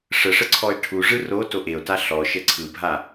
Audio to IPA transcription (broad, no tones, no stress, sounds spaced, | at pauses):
ʂ ə ʂ ə ǀʰ ɔ e̯ ʈʰ u ʐ ɯ r o t o ʔ e o̯ t a ɬ ɔ ʃ ə ǀʰ ɯ bʱ a